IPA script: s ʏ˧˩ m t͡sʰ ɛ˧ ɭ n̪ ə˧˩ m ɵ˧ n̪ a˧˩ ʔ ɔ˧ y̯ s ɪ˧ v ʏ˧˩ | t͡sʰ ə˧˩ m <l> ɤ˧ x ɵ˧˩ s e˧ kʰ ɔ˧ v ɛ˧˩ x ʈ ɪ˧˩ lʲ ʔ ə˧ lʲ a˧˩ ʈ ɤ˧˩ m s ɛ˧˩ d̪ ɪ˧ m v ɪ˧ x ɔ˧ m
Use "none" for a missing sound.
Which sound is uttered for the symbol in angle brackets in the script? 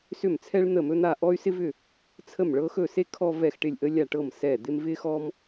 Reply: ɭ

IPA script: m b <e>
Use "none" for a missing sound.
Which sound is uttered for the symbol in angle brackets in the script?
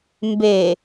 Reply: e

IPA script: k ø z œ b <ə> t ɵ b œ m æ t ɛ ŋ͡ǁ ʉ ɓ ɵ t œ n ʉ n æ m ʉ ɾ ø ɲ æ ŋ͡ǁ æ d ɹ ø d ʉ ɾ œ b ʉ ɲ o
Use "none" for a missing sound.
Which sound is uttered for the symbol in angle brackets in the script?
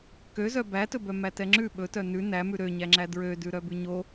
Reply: æ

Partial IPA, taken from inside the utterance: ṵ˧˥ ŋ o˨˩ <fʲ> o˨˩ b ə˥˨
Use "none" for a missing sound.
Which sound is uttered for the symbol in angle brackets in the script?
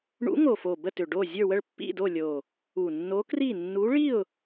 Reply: f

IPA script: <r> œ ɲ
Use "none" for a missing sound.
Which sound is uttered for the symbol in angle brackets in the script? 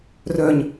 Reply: r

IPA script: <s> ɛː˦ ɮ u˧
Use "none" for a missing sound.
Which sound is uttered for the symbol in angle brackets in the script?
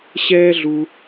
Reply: ɕ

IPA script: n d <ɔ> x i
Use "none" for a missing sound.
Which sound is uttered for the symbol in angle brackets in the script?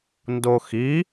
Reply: o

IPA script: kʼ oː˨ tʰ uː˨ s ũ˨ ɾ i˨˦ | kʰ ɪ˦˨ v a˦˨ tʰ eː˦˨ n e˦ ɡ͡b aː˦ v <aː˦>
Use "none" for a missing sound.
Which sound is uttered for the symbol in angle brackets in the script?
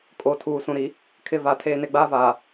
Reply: aː˨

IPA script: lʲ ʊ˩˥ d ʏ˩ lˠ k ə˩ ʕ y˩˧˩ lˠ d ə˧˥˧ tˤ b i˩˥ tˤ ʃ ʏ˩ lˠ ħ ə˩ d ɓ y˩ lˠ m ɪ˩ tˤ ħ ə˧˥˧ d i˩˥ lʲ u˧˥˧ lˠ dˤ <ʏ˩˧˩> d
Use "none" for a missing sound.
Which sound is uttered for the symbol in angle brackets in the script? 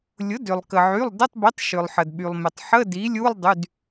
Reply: y˩˧˩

